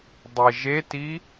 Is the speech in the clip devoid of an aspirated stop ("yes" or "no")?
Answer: yes